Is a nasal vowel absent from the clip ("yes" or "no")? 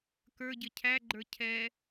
yes